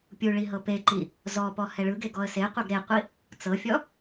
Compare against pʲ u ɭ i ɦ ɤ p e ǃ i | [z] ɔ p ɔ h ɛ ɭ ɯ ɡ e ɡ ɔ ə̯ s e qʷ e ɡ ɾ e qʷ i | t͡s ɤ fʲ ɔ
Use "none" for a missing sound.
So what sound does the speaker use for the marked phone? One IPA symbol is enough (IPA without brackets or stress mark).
z